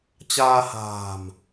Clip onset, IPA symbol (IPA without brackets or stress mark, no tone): t͡ɕ